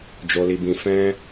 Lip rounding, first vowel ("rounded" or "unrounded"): rounded